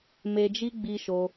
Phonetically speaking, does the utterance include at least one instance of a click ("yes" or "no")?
no